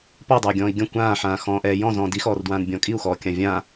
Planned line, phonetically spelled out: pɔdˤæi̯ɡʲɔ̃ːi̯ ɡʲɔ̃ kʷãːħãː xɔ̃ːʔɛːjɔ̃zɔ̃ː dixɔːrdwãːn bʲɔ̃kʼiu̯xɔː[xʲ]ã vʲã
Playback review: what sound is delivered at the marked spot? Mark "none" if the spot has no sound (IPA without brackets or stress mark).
kʲ